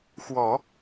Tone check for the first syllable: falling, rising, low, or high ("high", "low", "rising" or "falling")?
low